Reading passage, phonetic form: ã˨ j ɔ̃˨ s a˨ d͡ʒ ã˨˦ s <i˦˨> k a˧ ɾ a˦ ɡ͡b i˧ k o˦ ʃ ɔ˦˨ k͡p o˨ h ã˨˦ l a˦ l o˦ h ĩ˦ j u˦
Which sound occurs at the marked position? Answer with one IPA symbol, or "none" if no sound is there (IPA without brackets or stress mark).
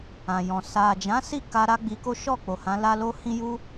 i˦˨